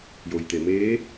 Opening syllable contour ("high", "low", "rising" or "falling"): low